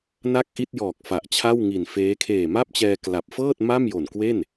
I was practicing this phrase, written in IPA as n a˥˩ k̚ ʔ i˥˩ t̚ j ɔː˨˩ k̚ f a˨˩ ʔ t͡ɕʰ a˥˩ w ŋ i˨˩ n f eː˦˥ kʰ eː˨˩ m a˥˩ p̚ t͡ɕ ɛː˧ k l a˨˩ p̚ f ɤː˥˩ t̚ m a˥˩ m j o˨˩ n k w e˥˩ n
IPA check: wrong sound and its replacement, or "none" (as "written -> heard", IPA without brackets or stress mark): none